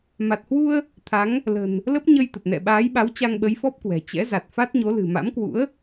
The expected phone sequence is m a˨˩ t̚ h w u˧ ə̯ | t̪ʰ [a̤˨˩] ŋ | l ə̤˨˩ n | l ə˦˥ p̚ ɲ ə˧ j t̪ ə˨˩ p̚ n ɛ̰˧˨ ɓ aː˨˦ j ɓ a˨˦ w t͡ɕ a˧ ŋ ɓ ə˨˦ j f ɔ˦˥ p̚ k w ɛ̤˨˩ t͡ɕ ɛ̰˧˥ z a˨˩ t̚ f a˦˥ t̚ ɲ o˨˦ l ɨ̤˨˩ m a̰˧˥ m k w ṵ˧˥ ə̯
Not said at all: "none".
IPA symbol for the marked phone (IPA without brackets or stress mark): a˨˦